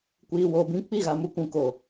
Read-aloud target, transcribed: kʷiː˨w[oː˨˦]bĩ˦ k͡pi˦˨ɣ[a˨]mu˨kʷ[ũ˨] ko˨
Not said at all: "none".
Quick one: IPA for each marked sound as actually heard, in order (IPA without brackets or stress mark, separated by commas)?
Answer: oː˨, a˨, ũ˨